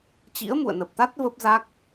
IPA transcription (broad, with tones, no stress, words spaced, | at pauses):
t͡ɕḭ˧˥ə̯mṵ˧˨ə̯nə˨˩p̚t̪a˦˥t̚ və˦˥p̚za˦˥k̚